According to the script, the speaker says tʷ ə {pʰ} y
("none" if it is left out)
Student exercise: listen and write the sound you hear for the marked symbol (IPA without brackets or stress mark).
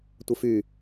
f